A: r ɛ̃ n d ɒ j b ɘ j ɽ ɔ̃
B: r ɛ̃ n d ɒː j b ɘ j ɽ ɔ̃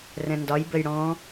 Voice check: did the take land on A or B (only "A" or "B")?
A